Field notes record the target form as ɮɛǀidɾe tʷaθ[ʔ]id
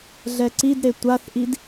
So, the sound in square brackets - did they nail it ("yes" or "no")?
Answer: yes